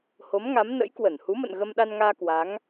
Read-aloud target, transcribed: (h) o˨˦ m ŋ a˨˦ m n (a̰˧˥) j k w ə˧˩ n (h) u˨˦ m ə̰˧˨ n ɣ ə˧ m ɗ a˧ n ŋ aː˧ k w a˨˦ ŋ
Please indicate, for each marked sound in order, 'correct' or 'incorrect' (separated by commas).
correct, incorrect, correct